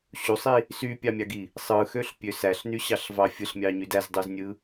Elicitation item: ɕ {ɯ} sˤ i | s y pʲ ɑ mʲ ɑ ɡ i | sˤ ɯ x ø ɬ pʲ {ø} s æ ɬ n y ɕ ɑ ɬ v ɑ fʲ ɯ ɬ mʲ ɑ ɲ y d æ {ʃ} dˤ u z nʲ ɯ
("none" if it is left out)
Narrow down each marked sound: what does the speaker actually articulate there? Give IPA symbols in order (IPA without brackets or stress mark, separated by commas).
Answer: u, ø, z